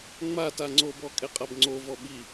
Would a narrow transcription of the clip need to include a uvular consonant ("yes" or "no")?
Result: yes